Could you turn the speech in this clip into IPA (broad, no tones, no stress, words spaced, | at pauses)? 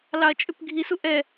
lɑɐ̯t͡ʃʼʏpɡʱisu ʔɛ